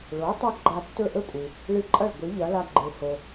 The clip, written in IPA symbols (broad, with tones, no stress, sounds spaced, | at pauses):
ɭ o˩˥ tˤ ɐ˧ ɡ͡ǃ a˧ tː ɵ˥˩ ʔ ɵ˥ kʷʼ ɨ˩ | ɭ ɨ˧ ǃʼ ɐ˥˩ ɭ ɡʷ i˩˥ ʎ ɐ˩˥ l a˧ ɡ͡ǃ e˩ h o˩